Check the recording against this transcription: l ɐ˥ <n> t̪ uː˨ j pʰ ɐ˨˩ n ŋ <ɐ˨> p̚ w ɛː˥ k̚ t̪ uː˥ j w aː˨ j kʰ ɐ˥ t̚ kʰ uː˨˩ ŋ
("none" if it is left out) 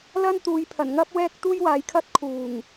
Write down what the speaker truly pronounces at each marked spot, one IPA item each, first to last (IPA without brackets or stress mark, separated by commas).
n, ɐ˥